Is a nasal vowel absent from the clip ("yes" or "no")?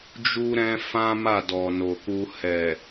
no